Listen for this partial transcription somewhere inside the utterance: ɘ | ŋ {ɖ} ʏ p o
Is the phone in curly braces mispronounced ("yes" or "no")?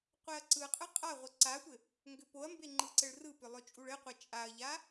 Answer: yes